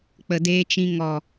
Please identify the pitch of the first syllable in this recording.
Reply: low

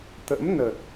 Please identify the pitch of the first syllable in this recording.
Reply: rising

